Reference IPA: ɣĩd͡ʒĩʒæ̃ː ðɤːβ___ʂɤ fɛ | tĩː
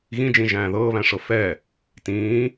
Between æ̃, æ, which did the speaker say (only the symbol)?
æ̃